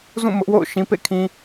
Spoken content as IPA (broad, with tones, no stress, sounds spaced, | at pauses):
z ũ˦˨ m ʊ˦ ʔ w o̰˦˨ ʊ̯ ʃ ĩ˦ p ḛ˦˨ kʰ ĩ˦